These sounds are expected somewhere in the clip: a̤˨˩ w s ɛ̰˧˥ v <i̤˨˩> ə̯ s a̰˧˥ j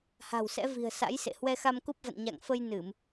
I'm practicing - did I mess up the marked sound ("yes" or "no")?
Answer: no